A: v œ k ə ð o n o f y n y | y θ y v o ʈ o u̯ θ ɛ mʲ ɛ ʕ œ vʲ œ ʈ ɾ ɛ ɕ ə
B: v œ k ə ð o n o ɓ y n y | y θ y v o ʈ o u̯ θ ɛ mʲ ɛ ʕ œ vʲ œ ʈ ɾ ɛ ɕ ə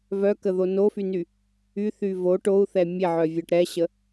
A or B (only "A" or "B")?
A